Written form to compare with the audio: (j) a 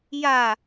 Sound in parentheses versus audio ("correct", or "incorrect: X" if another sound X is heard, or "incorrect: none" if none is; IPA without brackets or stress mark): correct